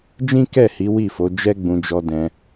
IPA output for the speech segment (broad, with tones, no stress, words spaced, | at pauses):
d͡ʒĩ˦kɛ˦˨hi˨˦ wi˦˨fo˨˦ d͡ʒɛ˦ɡ͡bũ˧ d͡ʒɔ˧dɛ̃˧